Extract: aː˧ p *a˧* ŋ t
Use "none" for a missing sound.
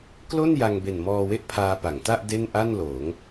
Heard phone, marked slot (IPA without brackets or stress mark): a˩˦